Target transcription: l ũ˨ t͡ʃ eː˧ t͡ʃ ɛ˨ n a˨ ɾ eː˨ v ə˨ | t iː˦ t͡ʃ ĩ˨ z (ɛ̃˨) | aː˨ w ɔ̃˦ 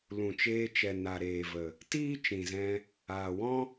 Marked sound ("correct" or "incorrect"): incorrect